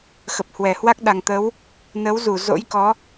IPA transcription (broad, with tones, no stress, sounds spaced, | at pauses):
x ə˨˩ p̚ h w ɛ˧˩ h w a˦˥ k̚ ɗ a˨˩ ŋ t̪ ə˨˦ w | n ə˨˦ w z u˧˩ z o̰˧˥ j k ɔ˨˦